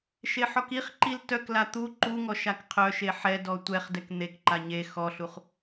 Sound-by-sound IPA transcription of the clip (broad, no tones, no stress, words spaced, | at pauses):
ʃeħɔkiχǃil tœkla t̪u ǃuŋɔ ʃakqʰœʃe ħɛdɔ tʷɛχdɛk n̪ekǃa ɲe xɔɬuχ